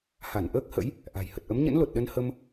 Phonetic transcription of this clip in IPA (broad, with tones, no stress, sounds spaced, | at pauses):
h a˧˩ n ʔ əː˦˥ k̚ h ə̰˧˥ j | ʔ a̤˨˩ j h ə˨˩ t̚ ʔ ə˨˦ m ɲ ə̰˧˥ n l o˨˩ t̚ ɗ ə˧ n h ə˧ m